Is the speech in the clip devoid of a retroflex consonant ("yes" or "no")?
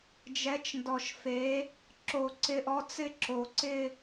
yes